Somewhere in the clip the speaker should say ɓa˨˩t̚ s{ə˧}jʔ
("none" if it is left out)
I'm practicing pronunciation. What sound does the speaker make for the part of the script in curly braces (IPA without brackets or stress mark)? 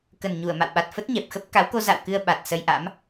ə˧